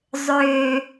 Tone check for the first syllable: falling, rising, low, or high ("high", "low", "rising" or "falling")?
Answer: low